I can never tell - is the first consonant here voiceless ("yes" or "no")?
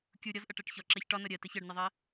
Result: yes